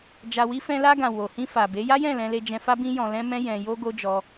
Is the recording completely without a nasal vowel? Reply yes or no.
no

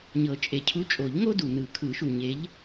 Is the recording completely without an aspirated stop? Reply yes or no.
no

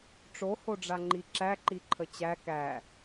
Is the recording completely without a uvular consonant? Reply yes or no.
yes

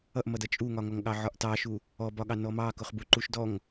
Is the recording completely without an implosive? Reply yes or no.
no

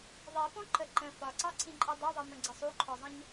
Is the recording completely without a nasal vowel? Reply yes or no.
no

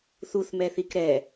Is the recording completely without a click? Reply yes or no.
yes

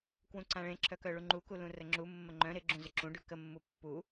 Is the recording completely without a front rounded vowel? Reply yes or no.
no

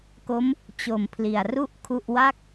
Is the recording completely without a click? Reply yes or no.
yes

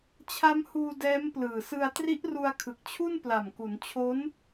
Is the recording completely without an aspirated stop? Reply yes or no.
no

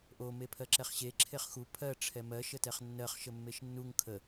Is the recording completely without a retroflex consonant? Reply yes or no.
no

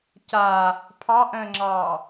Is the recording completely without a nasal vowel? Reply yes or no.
no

